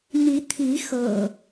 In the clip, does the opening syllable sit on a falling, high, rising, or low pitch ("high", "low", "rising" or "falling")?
rising